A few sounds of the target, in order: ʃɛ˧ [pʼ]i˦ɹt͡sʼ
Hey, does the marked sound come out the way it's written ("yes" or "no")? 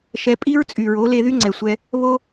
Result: yes